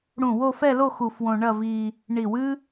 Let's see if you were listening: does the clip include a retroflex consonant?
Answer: yes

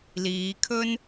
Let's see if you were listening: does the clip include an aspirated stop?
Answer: yes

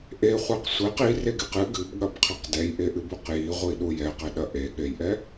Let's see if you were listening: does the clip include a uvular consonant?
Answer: yes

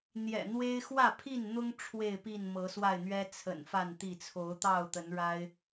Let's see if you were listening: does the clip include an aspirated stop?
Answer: yes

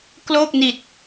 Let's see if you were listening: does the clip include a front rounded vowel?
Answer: no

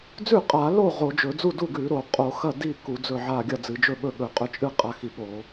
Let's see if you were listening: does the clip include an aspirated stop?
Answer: no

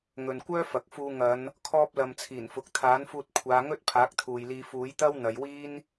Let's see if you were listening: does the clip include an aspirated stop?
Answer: yes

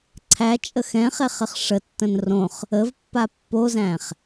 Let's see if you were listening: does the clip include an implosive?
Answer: no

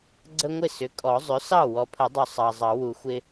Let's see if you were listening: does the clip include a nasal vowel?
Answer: no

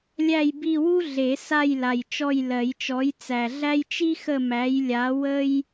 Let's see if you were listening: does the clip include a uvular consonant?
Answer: no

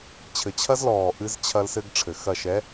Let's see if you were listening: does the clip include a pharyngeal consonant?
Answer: no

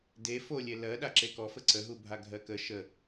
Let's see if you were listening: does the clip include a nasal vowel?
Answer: no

